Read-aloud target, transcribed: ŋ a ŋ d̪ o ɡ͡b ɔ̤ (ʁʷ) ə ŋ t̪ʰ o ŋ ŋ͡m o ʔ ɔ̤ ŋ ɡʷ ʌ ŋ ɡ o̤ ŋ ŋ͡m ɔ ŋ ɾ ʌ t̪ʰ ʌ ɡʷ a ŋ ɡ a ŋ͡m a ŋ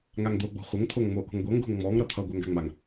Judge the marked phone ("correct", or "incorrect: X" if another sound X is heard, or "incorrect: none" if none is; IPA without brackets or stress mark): incorrect: χʷ